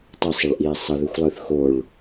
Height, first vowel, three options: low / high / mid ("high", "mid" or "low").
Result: mid